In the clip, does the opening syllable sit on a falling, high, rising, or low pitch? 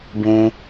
low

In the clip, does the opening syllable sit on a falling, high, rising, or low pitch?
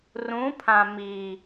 rising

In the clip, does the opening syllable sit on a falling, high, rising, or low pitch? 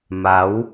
rising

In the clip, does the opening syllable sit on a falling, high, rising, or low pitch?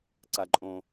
low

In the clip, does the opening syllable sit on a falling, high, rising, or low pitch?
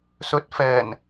rising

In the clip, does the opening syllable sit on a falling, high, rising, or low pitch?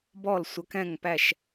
falling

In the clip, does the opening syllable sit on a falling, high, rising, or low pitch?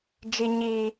high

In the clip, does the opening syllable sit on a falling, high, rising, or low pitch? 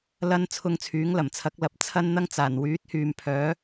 high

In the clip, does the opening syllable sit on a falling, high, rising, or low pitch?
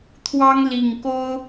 high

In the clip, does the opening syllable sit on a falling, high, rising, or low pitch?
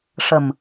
low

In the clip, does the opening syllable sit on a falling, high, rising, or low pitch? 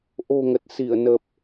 low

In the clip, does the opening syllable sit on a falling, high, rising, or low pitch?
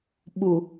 low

